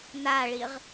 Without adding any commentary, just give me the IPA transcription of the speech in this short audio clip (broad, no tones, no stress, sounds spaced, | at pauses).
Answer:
n̪ a ɭ i ʁ